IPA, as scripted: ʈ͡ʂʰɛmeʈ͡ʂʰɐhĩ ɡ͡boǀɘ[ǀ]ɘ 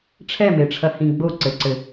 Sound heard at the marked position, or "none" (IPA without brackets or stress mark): ǀ